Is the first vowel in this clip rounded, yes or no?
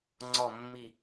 yes